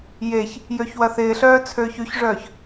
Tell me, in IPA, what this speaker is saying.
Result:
j e ç | j ø ç w ɐ θ ɪː ɬ œː t͡sʰ øː ç y ç ʐ œː ç

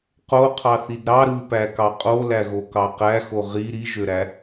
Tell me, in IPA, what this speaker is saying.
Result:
q o qʰ ɑ θ i d ɾ ɑ ɾ ɯ p æ k ɑ qʼ o l æ ɣ o k ɑ q æ x o ʁ i ɾ i ʒ ø ɾ æ

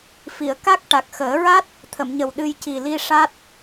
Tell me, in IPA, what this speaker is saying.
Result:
f i˨˩˨ ə̯ k a˦˥ k̚ ʈ a˨˩ k̚ x əː˨˩˦ ɹ a˦˥ t̚ | t̪ʰ ə˨˩˨ m ɲ ə˨˩ w ɗ ɨ˧ j c i˨˩ l i˧ ʂ a˦˥ t̚

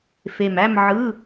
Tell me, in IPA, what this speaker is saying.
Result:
f e˨˩ m æ˥˧ m ʕ ɯ˧˥˧

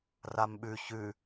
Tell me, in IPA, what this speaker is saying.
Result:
r a m ɓ ʉ ç ʉ

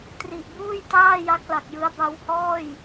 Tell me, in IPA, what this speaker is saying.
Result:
t r i˨˩ ʔ b uː˥˩ j t aː˥˩ j a˦˥ k̚ l a˨˩ k̚ j ɯ˦˥ a̯ b a˧ w h ɔː˥˩ j

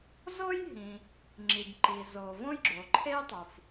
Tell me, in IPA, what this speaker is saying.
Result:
z o˥ j ɦ ĩ˩ | ŋ͡ǁ i˩ b ǃ i˩ z o˩ v õ˥ j ɡ͡ǁ o˩ ǃʰ e˥ j tˤ u˩ f

